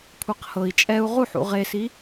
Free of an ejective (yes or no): no